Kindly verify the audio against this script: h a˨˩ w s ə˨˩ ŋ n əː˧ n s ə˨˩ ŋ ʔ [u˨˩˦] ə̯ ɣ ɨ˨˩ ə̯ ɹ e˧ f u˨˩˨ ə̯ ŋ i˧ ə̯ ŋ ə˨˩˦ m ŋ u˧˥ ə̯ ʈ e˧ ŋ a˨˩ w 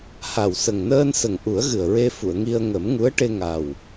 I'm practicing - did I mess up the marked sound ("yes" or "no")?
no